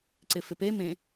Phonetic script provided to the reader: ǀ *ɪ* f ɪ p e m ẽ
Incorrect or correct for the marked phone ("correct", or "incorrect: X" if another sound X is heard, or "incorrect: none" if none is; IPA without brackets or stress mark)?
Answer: correct